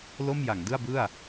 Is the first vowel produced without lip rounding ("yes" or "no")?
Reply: no